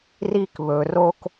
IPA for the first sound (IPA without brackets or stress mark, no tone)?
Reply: r